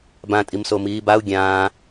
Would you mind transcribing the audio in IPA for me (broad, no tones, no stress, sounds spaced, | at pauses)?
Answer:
b ã tʼ i m s o m iː b a u̯ ɡʲ ãː